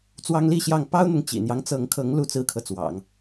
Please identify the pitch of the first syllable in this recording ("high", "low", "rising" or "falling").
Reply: high